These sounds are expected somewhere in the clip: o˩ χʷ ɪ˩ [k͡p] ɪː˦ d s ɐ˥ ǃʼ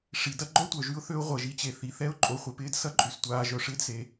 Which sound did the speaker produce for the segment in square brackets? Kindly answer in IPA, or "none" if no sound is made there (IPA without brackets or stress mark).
p